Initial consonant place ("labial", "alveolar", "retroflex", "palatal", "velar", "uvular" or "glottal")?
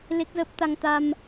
alveolar